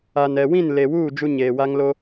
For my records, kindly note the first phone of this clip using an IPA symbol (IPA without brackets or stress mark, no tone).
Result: a